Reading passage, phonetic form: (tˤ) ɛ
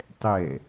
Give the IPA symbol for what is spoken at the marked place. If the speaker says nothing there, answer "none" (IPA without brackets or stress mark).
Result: tˤ